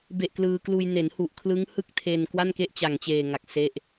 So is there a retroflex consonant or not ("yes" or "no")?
no